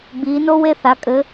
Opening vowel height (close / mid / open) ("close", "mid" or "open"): close